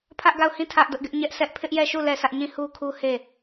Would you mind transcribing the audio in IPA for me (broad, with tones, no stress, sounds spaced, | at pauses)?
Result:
pʰ ä˦ ʔ ɡ a˦˨ ʊ̯ h ĩ˦˨ tʰ ä˦ ʔ d ʊ˦ ʔ ɡ ɪ˦ ʔ ɲ ɛ˦ ʔ s ɛ˦ ʔ pʰ ɪ˦ ʔ j ɛ˦˨ ʃ u˦˨ l ɛ˦˨ sʰ ä˦ ʔ ɲ ĩ˦˨ h u˦ kʰ u˦ h e˦˨